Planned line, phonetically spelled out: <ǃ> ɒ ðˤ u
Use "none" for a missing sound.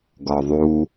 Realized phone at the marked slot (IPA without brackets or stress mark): ɡ